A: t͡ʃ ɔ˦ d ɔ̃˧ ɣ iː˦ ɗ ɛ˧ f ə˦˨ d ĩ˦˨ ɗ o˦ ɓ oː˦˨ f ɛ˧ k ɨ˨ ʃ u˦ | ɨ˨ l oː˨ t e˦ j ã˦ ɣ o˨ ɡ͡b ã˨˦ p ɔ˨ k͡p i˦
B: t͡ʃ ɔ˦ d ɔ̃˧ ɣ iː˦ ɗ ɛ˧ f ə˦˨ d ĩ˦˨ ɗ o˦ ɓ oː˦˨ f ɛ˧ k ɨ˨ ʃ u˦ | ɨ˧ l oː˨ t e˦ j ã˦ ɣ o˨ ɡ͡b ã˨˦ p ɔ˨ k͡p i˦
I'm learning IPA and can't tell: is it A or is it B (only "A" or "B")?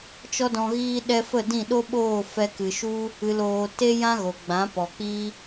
A